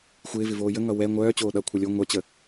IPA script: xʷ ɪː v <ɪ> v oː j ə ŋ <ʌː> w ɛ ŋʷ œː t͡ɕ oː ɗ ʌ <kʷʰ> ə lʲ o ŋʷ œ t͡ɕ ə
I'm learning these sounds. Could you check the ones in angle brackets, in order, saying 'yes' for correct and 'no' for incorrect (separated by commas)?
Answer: yes, no, yes